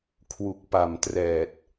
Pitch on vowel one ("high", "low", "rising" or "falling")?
low